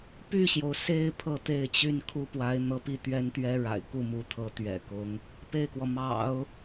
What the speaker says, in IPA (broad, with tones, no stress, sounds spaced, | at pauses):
p y˥˩ ɕ j o˩ ʊ̯ s e˥˧ ɪ̯ pʰ ɤ˥˧ t̪ e˥˩ ɪ̯ t͡ɕ y˥ n kʰ u˥ p w a˧˥ ɪ̯ n̪ ɤ˧˥ p i˥˩ t̪ ɥ ɛ˥ n t̪ ɥ ɛ˥ ɻ a̰˨˩ ɪ̯ k u˥˩ m u˧˥ t̪ʰ ɤ˧˥ t̪ ɥ ɛ̰˨˩ k ʊ˧˥ ŋ | p e˥˩ ɪ̯ k w ɔ˩ m ɑ̰˨˩˦ ʊ̯